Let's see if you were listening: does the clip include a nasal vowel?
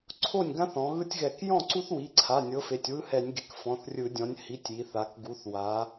yes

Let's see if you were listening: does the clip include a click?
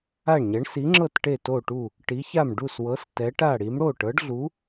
yes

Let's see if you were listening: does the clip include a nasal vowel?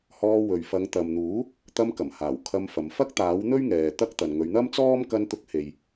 no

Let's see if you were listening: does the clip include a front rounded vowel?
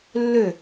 yes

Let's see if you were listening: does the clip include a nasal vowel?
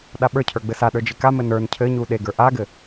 no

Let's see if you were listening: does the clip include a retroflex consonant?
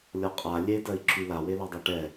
yes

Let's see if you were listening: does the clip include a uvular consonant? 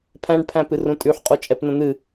yes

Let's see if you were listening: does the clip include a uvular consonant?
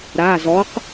yes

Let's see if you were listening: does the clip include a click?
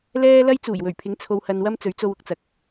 no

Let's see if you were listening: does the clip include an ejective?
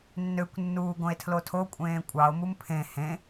yes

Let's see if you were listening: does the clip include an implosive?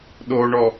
yes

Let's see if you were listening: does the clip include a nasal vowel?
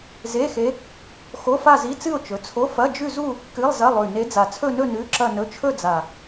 no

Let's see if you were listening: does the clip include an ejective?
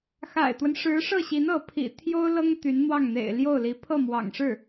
no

